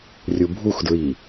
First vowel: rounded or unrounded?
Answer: rounded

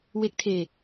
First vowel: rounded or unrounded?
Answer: unrounded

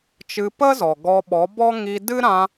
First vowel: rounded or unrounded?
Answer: unrounded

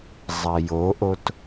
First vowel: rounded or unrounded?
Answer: unrounded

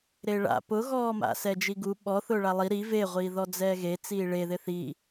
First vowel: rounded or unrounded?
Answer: unrounded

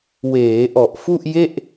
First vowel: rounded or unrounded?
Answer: unrounded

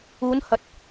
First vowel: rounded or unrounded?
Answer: rounded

